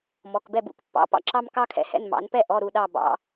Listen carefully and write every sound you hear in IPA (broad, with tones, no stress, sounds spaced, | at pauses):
m ɔ˩˧˩ k b ɛ˥˩ b ṵ˥˩ k pː ɑ̰˩˧˩ p ɑ̰˦ ǁ ɑ˦ m k ɑ˦ kʰ ɛ̰˩˧ h ɛ̰˩˧˩ n m ɑ̰˩˧ n p ɛ˥˩ ʔ ɔ˩˧˩ ɾ u˥˩ ɗ ɑ˥˩ b ɑ̰˩˧